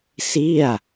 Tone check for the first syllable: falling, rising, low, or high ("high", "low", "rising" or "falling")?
falling